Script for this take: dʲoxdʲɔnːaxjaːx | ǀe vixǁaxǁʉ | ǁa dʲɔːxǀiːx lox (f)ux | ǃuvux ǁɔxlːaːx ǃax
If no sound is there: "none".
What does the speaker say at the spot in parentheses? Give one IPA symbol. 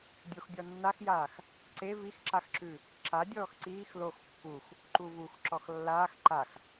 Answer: pː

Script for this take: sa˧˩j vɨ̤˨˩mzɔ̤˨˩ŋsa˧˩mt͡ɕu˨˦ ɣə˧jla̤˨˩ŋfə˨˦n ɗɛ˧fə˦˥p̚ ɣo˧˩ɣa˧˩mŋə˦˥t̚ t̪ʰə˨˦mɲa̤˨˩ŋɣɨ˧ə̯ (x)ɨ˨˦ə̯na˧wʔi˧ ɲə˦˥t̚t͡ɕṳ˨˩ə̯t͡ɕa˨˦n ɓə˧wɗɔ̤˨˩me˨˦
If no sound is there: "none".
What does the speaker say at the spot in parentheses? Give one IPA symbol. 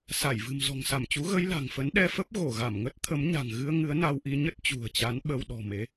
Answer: ŋ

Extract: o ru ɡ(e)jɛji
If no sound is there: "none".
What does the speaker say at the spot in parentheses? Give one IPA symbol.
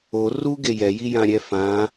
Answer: e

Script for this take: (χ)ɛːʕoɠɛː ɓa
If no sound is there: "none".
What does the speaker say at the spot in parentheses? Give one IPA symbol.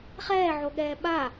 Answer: χ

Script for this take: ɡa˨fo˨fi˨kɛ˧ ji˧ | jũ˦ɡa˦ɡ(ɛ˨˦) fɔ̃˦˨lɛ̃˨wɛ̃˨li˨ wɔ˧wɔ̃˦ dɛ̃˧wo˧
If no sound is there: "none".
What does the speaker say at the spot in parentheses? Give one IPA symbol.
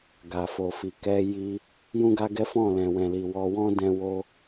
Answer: ɛ˦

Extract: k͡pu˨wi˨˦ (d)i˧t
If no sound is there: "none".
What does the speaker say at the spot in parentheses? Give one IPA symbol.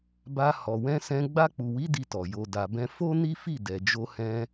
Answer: d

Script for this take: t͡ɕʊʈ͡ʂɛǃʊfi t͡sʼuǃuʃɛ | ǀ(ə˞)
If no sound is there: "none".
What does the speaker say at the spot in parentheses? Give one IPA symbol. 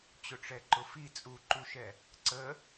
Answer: ə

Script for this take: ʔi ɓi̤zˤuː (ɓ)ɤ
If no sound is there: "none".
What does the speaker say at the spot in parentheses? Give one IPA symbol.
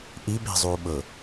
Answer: ɓ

